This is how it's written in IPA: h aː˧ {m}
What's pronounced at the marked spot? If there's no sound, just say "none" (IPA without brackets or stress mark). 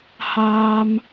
m